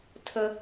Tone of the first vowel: high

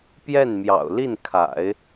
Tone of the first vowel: falling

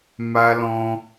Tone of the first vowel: high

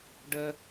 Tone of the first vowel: high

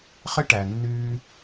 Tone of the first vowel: high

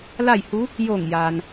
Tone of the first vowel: falling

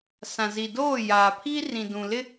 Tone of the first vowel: low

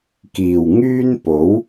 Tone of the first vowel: low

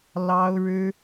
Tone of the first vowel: high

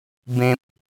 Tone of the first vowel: low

